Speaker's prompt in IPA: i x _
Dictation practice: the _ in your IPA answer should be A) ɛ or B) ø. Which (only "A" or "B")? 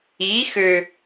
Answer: B